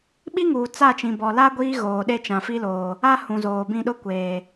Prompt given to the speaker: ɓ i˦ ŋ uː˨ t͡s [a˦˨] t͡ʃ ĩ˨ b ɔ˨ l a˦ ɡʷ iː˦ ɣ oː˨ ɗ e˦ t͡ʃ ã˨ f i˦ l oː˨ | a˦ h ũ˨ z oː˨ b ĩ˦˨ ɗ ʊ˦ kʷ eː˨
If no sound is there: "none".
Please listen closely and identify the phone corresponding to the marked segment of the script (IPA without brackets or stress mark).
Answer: a˦˨